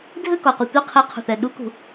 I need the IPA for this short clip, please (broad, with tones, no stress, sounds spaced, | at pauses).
dʱ ɘ˥˨ k ɔ˩ qʷ ɨ˩ tʷ i˥˨ qʰ i˧˥ qʰ ṳ˩ θ ɛ˩ ɗ u˧˥ k ṳ˩